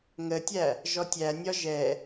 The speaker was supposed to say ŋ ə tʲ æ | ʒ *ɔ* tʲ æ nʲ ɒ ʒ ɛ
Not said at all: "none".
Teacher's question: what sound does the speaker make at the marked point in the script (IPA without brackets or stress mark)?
ɔ